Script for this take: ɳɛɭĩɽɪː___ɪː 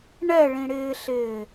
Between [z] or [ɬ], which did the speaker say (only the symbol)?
ɬ